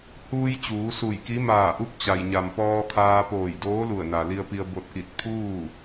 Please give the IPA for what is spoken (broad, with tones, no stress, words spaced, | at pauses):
huː˧j t͡ɕuː˩˧su˧˩jki˧˥ maː˧˩ʔu˧˥p̚ t͡ɕa˩jɲa˩mpɔː˧kʰaː˧ poː˧˩jdoː˧˥lu˧˩ə̯na˩ li˧ə̯pi˧ə̯ bo˧t̚ ʔi˧˩t̚pʰuː˥˨